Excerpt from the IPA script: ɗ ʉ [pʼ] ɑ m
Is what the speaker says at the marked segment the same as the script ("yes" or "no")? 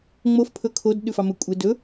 no